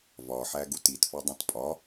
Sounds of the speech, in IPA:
vɒħæɡut itfɒdˤũt pʼɒ

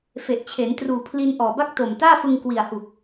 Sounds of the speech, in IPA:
fe˨˩ʔt͡ɕʰe˩˦n truː˨˩pʰli˧n ʔɔː˨˩ba˥˩k̚to˨˩m taː˥˩fɯ˧ŋ kwi˨˩a̯hu˨˩k̚

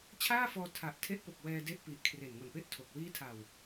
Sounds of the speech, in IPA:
t͡ɕʰaː˥˩fɔː˧ tʰa˨˩ʔtʰe˦˥ʔpo˨˩k̚ wɛː˧ de˦˥ʔpi˨˩ʔ kʰre˨˩nŋo˨˩npe˥˩ʔtʰo˨˩k̚ wiː˦˥tʰa˨˩w

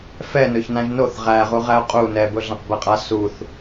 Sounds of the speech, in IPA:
fɛ nɵçnãʒnoθ ʁæʁu ʁæʊ̯qʼu nɛbʊɮãq bɛqʼa suθ

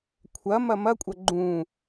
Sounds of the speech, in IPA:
kʷʰɐ mɐmɐkʷʼɐ ɡ͡ǃũ

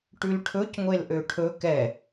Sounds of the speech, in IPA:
ʈʉlʈʰɵc ŋʷelʔøʈʰɵ kɛ

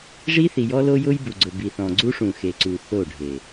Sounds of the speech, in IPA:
ʐi˦θi˨jɔ˦lo˦ jʊ˦jbu˨ɡ͡ǀʊ˨ bi˨θɔ̃˨ɡ͡ǀu˦ʂũ˨ xe˨ǀu˨ θo˦˨ɖʱe˨

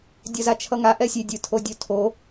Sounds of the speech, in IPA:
dʲʌzat͡ʃʰʌŋa ʔɛsʲedʲɯ tʰodʲotʰo

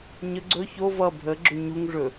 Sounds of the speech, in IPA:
ɲə ɡ͡ǀɵ ço vʌ bʱə ɡ͡ǁɵɲuŋ ʐɵ

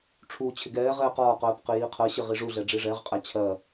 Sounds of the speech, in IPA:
ʈ͡ʂʰu t͡ɕʰɪɡɛːʁɛː qɒːqɜːp qɪjiːqʰɜɕɪ ʁiʐuɮɛ ɖ͡ʐiʐɛʁqʼæ t͡ɕʰɜ

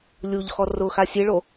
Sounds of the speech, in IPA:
lʲuʎxɔ rʊ xasʲeɭo

